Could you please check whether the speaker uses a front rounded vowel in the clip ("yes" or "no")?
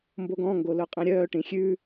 yes